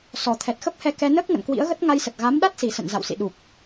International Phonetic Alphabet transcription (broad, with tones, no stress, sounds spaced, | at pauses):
s ɔ˨˩ t̪ʰ ɛ˨˩ t̚ x ə˦˥ p̚ h ɛ˧ k ɛ˧ n əː˦˥ k̚ ŋ ə̰˧˨ n k w ḭ˧˥ ə̯ ɣ ə˦˥ t̚ ŋ a˧ j s ə˨˩ t̚ ɣ a˨˦ m ɗ a˦˥ t̚ s i˨˩ s ə̰˧˨ n z a̰˧˨ w s ḭ˧˨ ɗ u˨˩ k̚